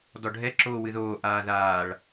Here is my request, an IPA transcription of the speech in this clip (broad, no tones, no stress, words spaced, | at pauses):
dɔɖʱɛ ǁoːwɨðoː ʔaːðaːɭ